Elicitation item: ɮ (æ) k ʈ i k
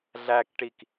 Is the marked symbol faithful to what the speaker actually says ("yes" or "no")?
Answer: yes